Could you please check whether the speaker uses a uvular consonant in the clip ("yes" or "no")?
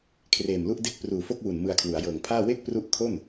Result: no